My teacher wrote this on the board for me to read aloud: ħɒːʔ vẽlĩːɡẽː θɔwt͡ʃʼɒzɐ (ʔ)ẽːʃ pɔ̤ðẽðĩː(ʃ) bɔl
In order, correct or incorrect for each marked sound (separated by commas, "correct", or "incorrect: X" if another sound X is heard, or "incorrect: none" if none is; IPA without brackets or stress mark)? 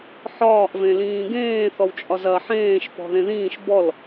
incorrect: ħ, correct